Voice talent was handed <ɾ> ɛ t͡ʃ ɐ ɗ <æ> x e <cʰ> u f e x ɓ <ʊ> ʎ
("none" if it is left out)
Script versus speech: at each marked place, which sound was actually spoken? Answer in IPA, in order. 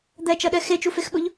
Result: d̪, ɛ, t͡ʃ, ʊ

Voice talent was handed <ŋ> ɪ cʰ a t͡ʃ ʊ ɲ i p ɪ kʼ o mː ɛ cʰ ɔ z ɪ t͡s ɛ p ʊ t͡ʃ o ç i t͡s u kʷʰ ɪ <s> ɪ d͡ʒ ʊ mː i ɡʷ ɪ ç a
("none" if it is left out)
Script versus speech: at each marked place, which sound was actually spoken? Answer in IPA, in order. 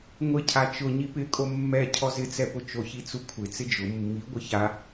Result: ŋʷ, t͡s

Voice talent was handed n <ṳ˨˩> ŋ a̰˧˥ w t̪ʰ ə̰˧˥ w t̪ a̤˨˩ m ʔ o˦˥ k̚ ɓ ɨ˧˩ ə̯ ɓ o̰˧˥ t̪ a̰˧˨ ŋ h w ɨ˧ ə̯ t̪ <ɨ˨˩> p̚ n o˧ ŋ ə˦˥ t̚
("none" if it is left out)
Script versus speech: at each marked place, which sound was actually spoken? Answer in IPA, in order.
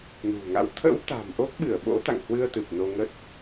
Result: ṳ˨˩, ɨ˨˩

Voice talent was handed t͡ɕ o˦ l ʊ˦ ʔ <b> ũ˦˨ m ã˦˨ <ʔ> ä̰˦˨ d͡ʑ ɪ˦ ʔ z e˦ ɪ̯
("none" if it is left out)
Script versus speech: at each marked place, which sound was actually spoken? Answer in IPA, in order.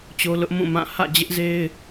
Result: m, h

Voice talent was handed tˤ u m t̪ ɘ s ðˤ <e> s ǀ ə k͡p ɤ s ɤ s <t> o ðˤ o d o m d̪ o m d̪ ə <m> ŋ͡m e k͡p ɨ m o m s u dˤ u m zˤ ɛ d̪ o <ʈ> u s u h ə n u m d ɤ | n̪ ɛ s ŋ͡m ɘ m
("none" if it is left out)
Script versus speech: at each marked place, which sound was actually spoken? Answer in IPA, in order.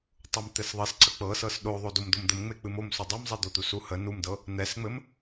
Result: ɘ, ɗ, m, t̪

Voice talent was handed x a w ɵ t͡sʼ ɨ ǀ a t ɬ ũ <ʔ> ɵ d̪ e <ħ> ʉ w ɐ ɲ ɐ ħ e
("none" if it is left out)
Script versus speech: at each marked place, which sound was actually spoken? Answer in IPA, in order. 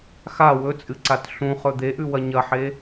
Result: χ, ʔ

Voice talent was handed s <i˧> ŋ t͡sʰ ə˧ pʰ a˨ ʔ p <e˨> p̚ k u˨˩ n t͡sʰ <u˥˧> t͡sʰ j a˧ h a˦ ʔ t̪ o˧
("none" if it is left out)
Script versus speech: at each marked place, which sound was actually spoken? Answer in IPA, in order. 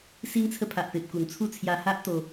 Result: i˧, e˨, u˥˧

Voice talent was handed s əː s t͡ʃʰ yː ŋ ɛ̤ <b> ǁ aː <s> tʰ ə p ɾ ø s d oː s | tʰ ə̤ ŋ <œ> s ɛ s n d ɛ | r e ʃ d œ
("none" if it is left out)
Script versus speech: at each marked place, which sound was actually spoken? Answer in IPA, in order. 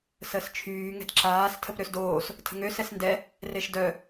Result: d, s, ø

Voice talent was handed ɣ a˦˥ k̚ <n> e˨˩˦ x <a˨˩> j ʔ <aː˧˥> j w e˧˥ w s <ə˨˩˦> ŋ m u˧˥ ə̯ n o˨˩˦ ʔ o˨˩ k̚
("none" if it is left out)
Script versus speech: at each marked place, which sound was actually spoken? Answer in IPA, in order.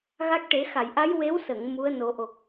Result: ʈ, a˨˩˨, a˧˥, ə˨˩˨

